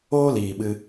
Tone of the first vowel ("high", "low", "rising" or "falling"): high